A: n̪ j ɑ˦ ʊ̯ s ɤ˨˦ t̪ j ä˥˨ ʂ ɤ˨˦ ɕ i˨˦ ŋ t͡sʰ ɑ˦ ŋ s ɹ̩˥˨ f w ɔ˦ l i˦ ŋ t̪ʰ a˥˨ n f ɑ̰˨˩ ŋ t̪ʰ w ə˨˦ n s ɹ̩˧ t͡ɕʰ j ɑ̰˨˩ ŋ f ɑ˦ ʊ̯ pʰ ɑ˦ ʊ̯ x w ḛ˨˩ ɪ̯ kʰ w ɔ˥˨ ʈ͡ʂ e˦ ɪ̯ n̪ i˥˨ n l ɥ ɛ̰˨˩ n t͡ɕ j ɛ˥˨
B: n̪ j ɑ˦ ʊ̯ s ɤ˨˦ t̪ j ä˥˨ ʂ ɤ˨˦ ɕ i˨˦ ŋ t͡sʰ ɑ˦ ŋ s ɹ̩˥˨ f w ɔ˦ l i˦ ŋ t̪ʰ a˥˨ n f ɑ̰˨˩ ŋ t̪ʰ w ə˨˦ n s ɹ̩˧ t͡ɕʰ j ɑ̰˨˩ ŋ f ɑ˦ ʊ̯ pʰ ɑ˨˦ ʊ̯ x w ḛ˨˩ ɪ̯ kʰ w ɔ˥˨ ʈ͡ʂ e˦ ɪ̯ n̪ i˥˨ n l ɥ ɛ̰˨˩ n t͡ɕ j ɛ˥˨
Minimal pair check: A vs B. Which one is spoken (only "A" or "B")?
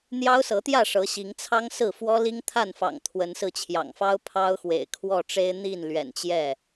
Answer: A